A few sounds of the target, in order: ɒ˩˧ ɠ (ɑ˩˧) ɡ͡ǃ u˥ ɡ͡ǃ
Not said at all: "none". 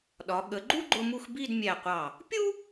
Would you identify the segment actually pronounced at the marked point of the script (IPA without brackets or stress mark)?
ə˩˧